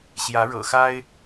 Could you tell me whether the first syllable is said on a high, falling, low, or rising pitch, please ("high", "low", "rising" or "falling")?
rising